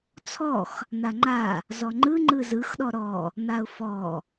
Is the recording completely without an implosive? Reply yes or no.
no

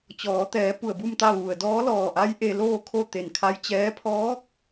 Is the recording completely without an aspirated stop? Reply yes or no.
no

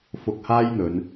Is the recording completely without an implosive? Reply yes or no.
yes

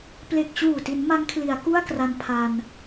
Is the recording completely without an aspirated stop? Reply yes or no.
no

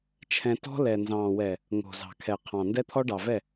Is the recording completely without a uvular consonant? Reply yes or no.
no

